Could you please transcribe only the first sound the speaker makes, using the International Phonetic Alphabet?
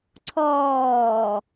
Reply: ǀʰ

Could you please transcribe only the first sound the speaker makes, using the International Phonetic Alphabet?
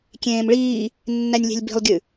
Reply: kʲ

